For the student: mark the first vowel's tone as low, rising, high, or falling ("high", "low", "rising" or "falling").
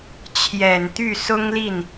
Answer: low